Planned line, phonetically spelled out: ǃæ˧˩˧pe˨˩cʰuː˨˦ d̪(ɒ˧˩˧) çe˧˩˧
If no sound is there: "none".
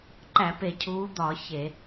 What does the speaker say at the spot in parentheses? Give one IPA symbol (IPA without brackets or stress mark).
ɒ˧˩˧